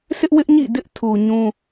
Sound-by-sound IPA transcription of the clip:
sɪ˦ʔwɪ˦ʔ ɲḭ˦˨dɪ˦ʔtʰu˨ ɲũ˦

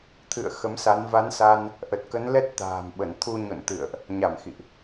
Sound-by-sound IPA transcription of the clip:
t̪ʰɨ̰˧˨ə̯ xə˨˦msa˨˦n va˨˦nsa˧n | ʔə˨˩t̚kə˨˦n lɛ˦˥t̚t̪a̤ː˨˩mɓə˧˩nt̪ʰu˧ ɲo̰˧˨nt̪ɨ̰˧˨ə̯ʔ | ɲa˧˩mxḭ˧˨ʔ

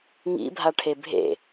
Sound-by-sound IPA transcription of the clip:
ŋḭbʱaʈʰe bʱḛ

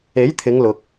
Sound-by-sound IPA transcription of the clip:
e˨˥jt̪ʰɪ˨˧ŋlʊ˨k̚

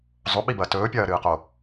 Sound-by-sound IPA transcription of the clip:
zˤoɓibɐː tɵːpʲɐːɾɨːqo

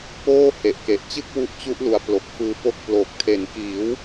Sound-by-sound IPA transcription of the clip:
poː˥˩ he˨˩ʔke˨˩ʔt͡ɕɯ˥˩k̚ wu˦˥ʔt͡ɕu˦˥ʔlu˨˩a̯ plo˨˩k̚fɯː˧po˦˥k̚ ploː˨˩k̚tʰe˩˦nkiː˩˦w

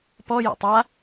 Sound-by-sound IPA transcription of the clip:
pɔ jo̰tˤa

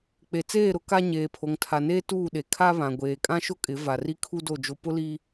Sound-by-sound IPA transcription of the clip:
k͡pe˨t͡seː˦˨ɾʊ˦ ka˦ ɲeː˨pʰo˨ŋtʰa˨neː˦ tuː˦˨ɗe˨ kʰa˦βã˨ ɡʷeː˨kʼã˦ʃʊ˦kʼɪ˨˦ va˨ri˦kʰu˦do˦˨ d͡ʒo˦ pʊ˦li˦

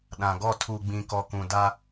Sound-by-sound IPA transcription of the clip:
ɗã˨ɡɔ˦˨ tʰu˨ɡ͡bĩ˨kɔ˨ kũ˨da˦

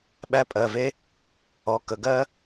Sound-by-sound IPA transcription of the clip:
ɓæ˥pʼɜ˩˧˩ve˥ | ɔ˩˧˩ kə˩˧˩ɡɜ˥

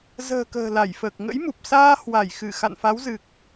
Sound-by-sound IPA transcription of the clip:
zə̤ː˨˩ kə̤ː˨˩la˧˩jfəː˨˩k̚ ŋə̰˧˥jmu˨˩p̚saː˧ hwa˧˩jxɨ˧˩ xa̰˧˨nfa˨˦wzɨ˨˩k̚

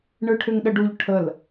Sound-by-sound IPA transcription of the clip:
ɳɯʈʰʏŋɗəɖuʎ ʈʰəl

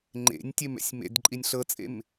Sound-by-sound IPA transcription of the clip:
ŋ͡ǃḛnʲtʲem ɛ̰sʲmḛd ǃʼinʲɬɤt͡sʼḛm

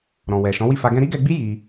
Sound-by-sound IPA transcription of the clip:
ɾɔ̃˨wɛ˨ ʃɔ̃˨˦wi˦˨fa˧ ɡɛ̃˧ɾi˦ɡɛ˧ɡ͡bi˦ ji˧

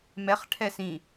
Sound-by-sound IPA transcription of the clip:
mɛχ ʈʰɛsĩ

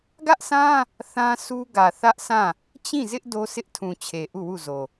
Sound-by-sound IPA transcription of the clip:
ɡä˦ʔsʰã˦ | θã˦ su˦ɡä˨ θä˦ʔsʰã˦˨ | t͡ɕĩ˦˨zɪ˦ʔ do˦sʰɪ˦ʔtʰũ˨ t͡ɕʰe˨ʔu˦˨ wu˦˨zo˨

